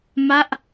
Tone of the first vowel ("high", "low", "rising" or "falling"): falling